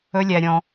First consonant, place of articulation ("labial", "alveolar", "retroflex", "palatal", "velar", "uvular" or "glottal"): alveolar